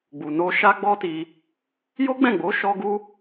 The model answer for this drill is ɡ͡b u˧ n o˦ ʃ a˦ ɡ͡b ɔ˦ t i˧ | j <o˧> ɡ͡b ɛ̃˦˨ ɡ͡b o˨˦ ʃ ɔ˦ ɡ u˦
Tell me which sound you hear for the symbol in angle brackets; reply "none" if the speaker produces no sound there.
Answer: o˦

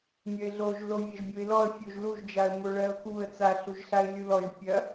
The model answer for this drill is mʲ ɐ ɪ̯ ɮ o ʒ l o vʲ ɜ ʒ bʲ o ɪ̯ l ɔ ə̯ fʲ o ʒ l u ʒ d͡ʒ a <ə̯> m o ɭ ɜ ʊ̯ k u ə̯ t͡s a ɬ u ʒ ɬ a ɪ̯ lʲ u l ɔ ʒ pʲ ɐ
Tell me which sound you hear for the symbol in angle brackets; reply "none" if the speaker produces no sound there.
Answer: ə̯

